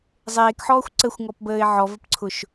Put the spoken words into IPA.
zˤeːkħɔːxʷ ǀəxʷŋɔpbəːɪ̯ ʕɔvəpǀʰʊʃ

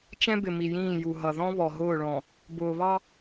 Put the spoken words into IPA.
t͡ʃɛ̃˦bɪ˨mi˨jĩː˦˨ ju˨ɦʌ˨ ðɔ̃˦βɔ˨ɦʊː˦˨ɭɔ̃˨ | bʊː˨βɑ˦

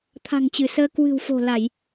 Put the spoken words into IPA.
t̪ʰa̤˨˩ŋt͡ɕɨ˧˩səː˧ kwɨ̤˨˩wfo̤˨˩la˧˩˨j

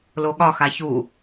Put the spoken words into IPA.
loɠɒxa çu

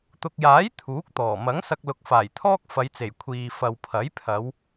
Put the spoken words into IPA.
t̪ʊ˨k̚jaː˨˥j t̪ʰuː˨˥k̚t̪ɔː˨˩ mɐ˨˥ŋsɐ˧k̚ lʊ˨˥k̚faː˨˩jt̪ʰɔː˥k̚ fɐ˨˧jt͡se˨˩j kʷʰiː˨ fɐ˨wpʰɐ˨˥j pʰɐ˨˧w

